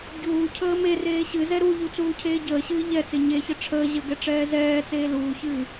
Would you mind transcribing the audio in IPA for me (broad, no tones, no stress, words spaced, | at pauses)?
ɟuːcʰəː me reːɕɨzɛ ɾuʎu t͡suːcʰeːɟəːɕɨː ʎɛt͡se ɲeçə ʈ͡ʂʰəː ʑəɡɛ ʈ͡ʂɛːzɛːt͡seː luːçɨː